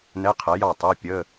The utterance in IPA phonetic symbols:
n ɛ˧˥˧ qʰ ɛ˩˥ j ɑ˥˩ tˤ ɜ˧˥˧ pʲ ə˧˥˧

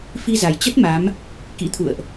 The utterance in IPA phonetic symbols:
f i˧ z a˨˩ j t͡ɕ ə˦˥ t̚ m a˨˦ m | k ḭ˧˥ t̪ʰ ṵ˧˨ ə̯ ʔ

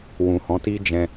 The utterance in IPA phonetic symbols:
w ũ˨ h ɔ̃˨˦ t i˦ d͡ʒ ɛ̃˧

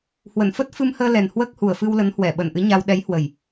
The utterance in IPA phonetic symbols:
h w ə˧˩ n f ə˦˥ t̚ f ɨ˧ m h əː˧ l ɛ˨˩ n h w əː˦˥ k̚ h u˨˩ ə̯ f ɨ˧ w l ə˨˦ n h w ɛ˧˩ ɓ ə˧˩ n ʔ ɨ˨˦ ɲ a˧ w ɗ ɛ˨˦ j h w ə˨˩ j

